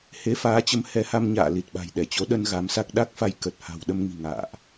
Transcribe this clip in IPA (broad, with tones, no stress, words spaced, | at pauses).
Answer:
he˨˦faː˨˦t͡ɕə˨˦m hɛ˨˦ha˧m ɲa̰ː˧˨ li˨˩t̚ɓa̤˨˩j ɗɛ˧˩t͡ɕo˨˦ ɗə˧n ɣa˨˦msa˦˥k̚ ɗa˦˥k̚fa˧j kə˨˩t̚ha̤˨˩w ɗə˧mŋi̤˨˩ ŋa̰ː˧˨ʔ